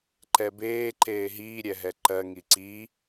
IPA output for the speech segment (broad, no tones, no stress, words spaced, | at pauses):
ǃɛbeːǃeː ɦiːɾʲɛɦɛ ǃɜ ŋiǀiː